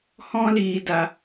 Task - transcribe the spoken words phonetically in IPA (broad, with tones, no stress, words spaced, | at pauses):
hɔ̃˦liː˨da˨